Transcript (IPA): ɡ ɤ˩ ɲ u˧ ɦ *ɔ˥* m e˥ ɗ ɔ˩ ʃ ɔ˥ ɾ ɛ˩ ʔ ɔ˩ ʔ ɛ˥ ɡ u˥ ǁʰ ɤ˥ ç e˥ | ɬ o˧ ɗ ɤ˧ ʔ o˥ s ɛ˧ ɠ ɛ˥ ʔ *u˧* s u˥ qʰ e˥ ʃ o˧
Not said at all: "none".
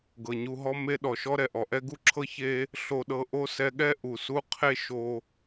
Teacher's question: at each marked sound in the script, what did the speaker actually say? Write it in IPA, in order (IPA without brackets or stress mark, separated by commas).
ɔ˥, u˩